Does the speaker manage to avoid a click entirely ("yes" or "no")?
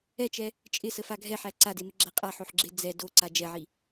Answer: no